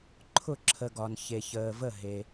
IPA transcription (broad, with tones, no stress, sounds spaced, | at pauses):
ǃʰ ʊ˥˩ ǁʰ ə˨ ɡ ɒ˨ n ç e˨ ç əː˨ v ə˥˩ ɦ e˨